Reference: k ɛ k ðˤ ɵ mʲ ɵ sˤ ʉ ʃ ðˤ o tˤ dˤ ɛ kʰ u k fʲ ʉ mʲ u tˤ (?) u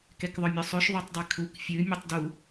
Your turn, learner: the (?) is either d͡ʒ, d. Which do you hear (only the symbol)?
d